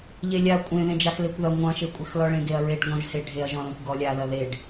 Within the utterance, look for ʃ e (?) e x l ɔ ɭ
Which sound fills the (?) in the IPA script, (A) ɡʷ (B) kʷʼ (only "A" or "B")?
B